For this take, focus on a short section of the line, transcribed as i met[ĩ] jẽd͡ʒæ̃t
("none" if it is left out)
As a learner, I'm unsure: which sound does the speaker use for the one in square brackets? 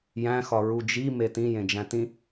ĩ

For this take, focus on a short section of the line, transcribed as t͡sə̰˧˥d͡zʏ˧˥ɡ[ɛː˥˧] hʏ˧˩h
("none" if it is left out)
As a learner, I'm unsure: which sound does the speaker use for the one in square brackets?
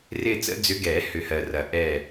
ɛː˨˩˦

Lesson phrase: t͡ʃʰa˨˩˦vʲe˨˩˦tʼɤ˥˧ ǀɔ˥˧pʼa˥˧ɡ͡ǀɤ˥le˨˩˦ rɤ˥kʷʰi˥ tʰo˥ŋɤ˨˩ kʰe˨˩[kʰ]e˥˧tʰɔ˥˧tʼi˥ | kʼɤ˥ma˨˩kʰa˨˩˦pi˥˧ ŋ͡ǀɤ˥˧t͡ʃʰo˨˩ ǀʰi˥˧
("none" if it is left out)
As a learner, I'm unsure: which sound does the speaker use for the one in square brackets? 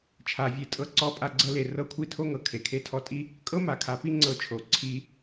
kʰ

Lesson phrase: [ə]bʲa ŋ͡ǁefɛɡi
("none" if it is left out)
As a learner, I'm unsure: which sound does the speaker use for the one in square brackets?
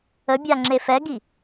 ə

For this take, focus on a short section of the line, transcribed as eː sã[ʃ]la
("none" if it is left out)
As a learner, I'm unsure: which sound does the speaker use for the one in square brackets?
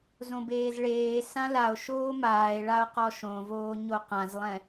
none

